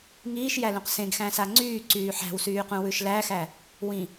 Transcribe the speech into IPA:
ŋ iː ʃ j æ l ũ q s ẽ ɡ x æ̃ s a ŋ͡ǀ yː ǀ yː ħ æ̤ w s yː q ũ w ʉ ʃ l æ x æ | w ĩ

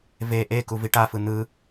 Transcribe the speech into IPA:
v e ʔ e k u v i ʈ a f ɯ n̪ ɯ

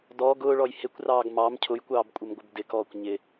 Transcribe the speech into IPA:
d ɔ ɡ ʊː ɭ ɔ j h ɪ kʷ r ɑː ɡ m ɑ m cʰ ʊ j kʷ ɑː b kʷʼ ɪ m ɡʷ ə b d ɪ k ɔː kʷ ɲ ɪ

